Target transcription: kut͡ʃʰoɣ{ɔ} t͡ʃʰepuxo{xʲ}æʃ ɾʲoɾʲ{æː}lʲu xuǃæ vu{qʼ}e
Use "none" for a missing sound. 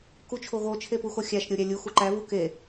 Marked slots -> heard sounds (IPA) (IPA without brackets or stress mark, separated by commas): o, xʲ, æ, k